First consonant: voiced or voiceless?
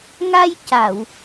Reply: voiced